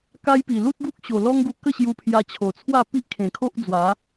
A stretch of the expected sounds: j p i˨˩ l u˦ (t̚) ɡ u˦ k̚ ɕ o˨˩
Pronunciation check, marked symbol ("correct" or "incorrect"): correct